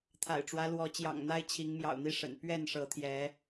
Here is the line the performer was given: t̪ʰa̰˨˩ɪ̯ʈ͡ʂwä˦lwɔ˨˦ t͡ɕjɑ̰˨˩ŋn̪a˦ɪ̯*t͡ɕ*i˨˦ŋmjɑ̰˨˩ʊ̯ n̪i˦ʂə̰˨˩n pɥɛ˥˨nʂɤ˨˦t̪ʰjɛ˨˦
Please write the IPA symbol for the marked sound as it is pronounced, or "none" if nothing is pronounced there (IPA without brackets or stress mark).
t͡ɕʰ